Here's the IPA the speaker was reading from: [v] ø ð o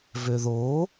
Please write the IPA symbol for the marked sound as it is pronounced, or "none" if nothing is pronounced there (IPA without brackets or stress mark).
v